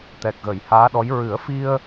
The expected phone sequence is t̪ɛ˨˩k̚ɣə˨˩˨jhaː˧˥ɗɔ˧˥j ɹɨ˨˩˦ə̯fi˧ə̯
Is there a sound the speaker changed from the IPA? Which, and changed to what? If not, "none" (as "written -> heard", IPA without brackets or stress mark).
none